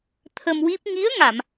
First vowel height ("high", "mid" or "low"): mid